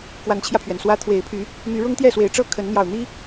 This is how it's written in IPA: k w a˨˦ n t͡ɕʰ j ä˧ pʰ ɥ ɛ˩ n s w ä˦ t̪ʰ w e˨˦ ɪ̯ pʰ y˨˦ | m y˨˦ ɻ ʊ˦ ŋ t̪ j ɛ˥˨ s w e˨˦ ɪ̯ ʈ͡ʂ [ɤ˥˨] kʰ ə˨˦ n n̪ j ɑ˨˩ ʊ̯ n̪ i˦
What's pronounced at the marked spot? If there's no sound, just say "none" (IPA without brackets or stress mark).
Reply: ɤ˥˨